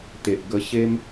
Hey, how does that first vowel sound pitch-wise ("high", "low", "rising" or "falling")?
low